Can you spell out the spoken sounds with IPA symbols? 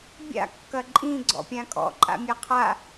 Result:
bʲ a̰ kː ɐ ǃʼ ĩ ɡ͡ǀ ɔ̰ pʲ ã kʼ ɔ̰ ǃʼ a̰ mʲ a qʰ a

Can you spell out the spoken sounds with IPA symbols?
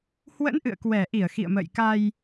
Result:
h w ə̰˧˥ n ʔ ɨ̰˧˨ ə̯ k w ɛ˧˩ ʔ i˧˩ ə̯ x ḭ˧˨ ə̯ m ə̰ː˧˨ j k a˧ j

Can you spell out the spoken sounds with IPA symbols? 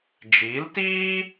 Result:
d͡ʒ iː˨˦ l t iː˦

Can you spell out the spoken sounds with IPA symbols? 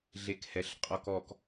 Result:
ɮ e k h ɛ ɬ qʼ ɔ k ɔ k

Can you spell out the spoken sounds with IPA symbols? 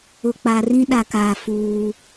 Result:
ʊ˨ k͡p a˨ r ĩ˦ ɗ a˨ k aː˨ f uː˦

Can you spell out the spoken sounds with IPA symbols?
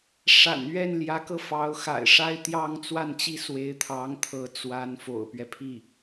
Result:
ʂ a̰˨˩ n ɥ ɛ˥˩ n l j ä˧˥ k ɤ˧ f ɑ˧˥ ʊ̯ x a̰˨˩ ɪ̯ ʂ a˥˧ ɪ̯ t̪ j ɑ˥˧ ŋ t͡s w a˥˩ n t͡ɕ i˥ s w e˧˥ ɪ̯ t̪ʰ ɑ˧˥ ŋ t̪ʰ ɤ˧˥ t͡s w a˧˥ n f o̰˨˩ ʊ̯ p ɥ ɛ˦ pʰ i˥˩

